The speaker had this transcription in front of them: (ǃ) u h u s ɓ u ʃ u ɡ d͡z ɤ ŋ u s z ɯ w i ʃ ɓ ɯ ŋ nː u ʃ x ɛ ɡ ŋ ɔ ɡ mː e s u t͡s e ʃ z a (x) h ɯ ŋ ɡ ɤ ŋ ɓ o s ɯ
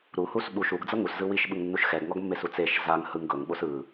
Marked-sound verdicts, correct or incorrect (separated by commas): incorrect, incorrect